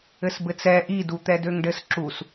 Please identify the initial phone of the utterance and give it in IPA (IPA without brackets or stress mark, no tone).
ɘ